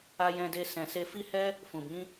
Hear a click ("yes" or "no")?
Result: no